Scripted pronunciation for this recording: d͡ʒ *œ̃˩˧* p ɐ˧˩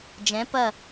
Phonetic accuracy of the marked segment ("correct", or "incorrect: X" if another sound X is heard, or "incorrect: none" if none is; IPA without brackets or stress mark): incorrect: ɛ̃˩˧